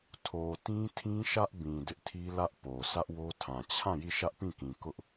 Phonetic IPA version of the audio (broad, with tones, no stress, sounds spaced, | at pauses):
tʰ o˨ t ĩ˦ tʰ ĩ˦ ʃ ä˦ ʔ b ĩ˨ d ɪ˦ ʔ tʰ i˦ l ä˦ ʔ p o˨ s ä˦ ʔ w o˦ tʰ ã˨ t͡ɕʰ ã˦˨ j i˦˨ ʃ ä˦ ʔ p ĩ˦˨ k ĩ˨ k ʊ˦ ʔ